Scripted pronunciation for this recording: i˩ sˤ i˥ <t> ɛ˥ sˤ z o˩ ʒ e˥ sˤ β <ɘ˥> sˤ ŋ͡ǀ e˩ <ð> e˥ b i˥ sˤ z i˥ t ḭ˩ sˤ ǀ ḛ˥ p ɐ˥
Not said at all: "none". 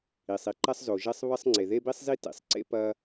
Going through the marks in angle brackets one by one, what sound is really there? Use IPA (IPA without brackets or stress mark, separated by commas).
ǃ, ɘ˥, ð